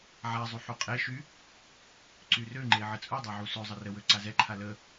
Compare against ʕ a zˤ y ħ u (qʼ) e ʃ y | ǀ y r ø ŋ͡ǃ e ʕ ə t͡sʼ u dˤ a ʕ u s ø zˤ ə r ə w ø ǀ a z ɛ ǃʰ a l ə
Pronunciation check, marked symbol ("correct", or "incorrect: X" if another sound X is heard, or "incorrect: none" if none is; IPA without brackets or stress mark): correct